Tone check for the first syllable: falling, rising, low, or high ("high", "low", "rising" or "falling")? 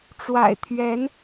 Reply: low